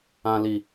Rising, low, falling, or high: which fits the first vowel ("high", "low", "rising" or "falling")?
low